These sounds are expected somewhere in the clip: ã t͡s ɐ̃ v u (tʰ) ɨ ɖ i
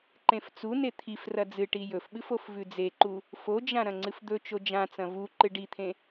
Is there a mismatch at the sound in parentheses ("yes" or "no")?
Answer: yes